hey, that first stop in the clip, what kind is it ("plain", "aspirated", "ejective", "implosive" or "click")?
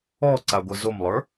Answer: click